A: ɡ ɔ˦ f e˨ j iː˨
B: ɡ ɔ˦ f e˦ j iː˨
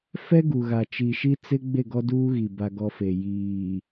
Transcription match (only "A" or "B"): A